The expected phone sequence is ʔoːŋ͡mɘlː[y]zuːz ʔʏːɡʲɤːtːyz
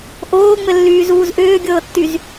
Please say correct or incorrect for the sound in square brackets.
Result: incorrect: yː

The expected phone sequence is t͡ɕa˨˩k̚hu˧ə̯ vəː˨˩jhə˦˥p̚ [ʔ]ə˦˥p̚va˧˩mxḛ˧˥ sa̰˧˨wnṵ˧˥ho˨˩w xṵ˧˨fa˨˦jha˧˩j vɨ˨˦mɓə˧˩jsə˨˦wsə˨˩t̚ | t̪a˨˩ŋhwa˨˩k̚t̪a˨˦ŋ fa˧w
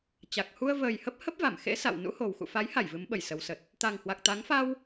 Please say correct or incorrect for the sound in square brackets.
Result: incorrect: h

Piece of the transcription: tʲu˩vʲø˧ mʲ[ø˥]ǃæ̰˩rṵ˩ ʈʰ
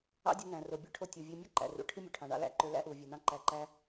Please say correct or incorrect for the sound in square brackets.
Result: correct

